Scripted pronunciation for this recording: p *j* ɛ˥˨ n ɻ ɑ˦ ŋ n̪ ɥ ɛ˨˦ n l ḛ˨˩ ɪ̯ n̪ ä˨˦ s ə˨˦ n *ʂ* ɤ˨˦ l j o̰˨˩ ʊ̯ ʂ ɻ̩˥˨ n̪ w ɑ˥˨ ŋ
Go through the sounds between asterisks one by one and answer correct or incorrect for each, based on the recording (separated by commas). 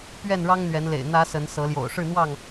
incorrect, incorrect